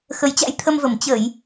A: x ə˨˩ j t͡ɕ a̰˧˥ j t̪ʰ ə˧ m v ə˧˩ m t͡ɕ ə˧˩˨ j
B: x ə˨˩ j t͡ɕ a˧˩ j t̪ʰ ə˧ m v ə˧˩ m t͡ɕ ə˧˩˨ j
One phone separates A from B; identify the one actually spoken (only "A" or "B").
A